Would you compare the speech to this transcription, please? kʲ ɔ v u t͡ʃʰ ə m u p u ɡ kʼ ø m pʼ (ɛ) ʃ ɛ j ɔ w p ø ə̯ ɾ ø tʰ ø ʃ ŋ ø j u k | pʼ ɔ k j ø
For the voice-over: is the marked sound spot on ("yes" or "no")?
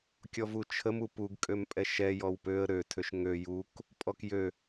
yes